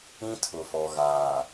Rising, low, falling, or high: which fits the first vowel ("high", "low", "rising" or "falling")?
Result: high